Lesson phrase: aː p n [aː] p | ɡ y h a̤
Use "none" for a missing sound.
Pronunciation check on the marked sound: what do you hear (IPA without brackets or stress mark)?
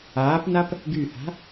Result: a